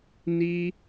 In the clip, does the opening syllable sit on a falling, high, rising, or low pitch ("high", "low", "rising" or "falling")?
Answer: high